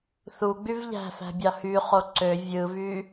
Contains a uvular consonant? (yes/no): yes